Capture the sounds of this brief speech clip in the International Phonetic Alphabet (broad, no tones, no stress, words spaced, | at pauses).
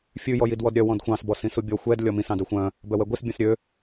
fʲʉ jɔjidwɔdɾʲœ wɔ̃dxʷɑ̃s bɔsĩsubʲɔ xʷɛd lʲɔmĩs ɑ̃dœxʷœ̃ | bœwɛɡʷis bʲũsɾʲø